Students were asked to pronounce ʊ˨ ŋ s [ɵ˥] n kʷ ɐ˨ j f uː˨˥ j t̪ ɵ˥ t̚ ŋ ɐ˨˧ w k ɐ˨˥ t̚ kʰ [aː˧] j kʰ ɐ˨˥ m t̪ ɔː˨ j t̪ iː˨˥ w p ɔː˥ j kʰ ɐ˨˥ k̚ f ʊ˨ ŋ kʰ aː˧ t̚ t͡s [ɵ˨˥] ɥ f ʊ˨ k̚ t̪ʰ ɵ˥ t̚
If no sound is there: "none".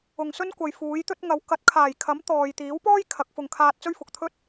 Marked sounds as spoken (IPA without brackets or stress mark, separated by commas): ɵ˥, aː˨˩, ɵ˥